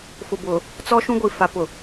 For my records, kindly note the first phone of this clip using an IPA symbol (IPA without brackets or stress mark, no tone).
f